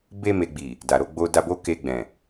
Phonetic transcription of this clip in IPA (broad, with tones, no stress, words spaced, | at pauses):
be˧ me˨ɡ͡bi˨ | da˨ɾo˧ ɡ͡bo˧da˧bo˦ ke˧ɡ͡bɛ̃˨